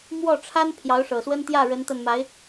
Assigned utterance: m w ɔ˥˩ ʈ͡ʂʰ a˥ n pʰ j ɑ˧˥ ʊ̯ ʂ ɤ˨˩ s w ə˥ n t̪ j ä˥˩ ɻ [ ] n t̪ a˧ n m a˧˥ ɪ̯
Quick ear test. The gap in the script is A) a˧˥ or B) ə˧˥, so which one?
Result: B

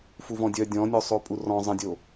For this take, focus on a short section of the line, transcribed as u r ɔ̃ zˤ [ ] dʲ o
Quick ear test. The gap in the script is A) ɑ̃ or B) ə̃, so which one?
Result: B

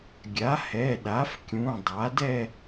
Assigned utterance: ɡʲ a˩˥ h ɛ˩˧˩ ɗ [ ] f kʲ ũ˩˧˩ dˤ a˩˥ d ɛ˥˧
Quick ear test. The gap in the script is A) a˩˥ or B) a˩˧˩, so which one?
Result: A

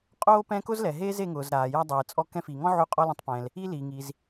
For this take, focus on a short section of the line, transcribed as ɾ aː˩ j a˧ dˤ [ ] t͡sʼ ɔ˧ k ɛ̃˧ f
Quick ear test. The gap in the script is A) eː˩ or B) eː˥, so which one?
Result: A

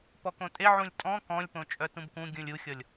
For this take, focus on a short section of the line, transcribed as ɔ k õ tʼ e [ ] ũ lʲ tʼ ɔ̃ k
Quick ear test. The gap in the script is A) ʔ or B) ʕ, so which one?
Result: B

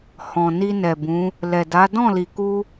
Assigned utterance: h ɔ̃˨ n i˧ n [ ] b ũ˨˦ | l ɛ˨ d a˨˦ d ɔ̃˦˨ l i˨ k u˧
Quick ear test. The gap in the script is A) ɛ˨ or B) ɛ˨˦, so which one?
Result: A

